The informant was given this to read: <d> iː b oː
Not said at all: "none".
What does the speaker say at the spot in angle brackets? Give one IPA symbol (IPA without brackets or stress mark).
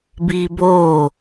b